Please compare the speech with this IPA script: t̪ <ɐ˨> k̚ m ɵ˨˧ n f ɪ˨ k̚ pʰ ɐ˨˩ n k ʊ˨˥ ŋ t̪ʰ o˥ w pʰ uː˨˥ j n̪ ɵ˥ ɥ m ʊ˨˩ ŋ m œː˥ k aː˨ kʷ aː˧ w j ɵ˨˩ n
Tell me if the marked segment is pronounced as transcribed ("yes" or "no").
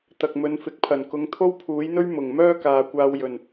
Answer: yes